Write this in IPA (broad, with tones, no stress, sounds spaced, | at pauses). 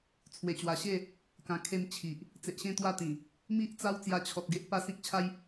t͡sʰ w e˨˩ t͡ɕ w a˨˩ ɕ e˥˧ | k ã˨˩ kʰ e˧ m t͡ɕʰ i˨ ʔ | t͡s e˨ ʔ ɕ ẽ˥˧ t̪ w a˥˧ t̪ ĩ˨˩ | m i˦ ʔ t͡s a˦ w t͡s j a˧ t͡ɕʰ ɔ˨ t̚ ɡ e˦ ʔ p a˦ s ĩ˦ k̚ t͡ɕʰ a˦ j